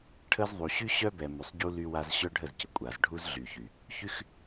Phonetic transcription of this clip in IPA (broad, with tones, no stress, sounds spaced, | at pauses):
ʈʰ ə˦ z ðˤ u˨ ɕ y˦ ɕ œ˦ b ɛ˨ m y˨ sˤ ɟ u˦ l y˦ w a˦ z ɕ œ˦ ɖʱ ə˦˨ z c ə˨ kʷʼ a˨ z ɖʱ u˦ z ɮ y˨ ç y˨ | ç y˦ x